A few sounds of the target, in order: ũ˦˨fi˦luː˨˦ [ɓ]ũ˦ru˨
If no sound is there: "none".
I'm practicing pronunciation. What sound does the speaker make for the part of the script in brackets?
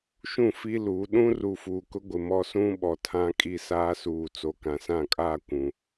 ɗ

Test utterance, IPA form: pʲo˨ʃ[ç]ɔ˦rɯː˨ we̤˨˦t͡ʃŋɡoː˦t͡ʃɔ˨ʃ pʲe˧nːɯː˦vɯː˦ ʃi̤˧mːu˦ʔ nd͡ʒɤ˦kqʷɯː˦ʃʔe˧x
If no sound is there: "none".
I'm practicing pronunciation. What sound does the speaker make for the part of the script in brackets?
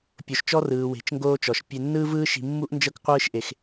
t͡ʃ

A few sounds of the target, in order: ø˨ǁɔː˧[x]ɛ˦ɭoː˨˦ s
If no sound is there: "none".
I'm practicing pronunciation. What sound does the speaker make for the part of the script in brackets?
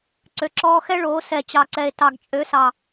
x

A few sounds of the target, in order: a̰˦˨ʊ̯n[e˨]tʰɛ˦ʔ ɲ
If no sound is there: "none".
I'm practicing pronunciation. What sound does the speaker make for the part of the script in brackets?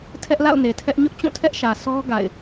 e˨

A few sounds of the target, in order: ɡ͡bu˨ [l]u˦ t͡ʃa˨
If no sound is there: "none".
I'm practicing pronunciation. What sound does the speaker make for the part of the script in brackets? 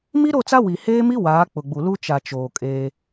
l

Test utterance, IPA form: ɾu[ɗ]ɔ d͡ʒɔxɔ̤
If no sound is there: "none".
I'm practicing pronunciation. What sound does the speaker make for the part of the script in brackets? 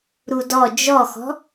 d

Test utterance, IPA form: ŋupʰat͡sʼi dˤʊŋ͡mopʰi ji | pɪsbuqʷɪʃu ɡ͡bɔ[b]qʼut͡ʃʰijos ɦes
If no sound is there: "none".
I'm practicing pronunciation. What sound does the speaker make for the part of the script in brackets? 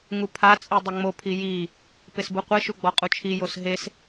none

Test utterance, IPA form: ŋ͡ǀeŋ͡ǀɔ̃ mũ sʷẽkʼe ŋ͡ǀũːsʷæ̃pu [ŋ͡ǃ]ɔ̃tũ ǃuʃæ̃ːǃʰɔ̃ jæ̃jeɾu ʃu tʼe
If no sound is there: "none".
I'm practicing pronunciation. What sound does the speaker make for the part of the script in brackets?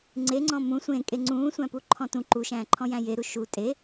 ǃʰ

